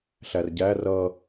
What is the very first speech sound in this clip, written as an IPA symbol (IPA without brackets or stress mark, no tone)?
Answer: ɬ